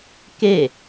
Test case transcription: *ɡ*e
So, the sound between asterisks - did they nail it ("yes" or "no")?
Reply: no